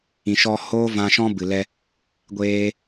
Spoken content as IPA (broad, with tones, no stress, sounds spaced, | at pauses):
ĩ˨ ʃ ɔ˧ h oː˦ v ã˧ ʃ ɔ̃˦ b ɨ˨ l ɛ˧ | ɡʷ eː˧